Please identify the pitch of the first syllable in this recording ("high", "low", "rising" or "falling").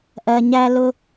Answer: low